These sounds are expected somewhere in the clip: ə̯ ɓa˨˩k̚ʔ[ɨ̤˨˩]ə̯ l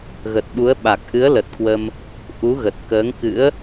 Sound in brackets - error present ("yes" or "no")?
yes